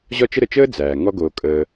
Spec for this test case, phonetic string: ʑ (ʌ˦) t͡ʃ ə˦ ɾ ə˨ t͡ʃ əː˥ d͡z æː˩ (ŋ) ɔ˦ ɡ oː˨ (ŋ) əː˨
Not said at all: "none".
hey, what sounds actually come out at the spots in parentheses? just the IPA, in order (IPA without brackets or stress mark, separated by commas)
ɒ˦, ŋ, kʼ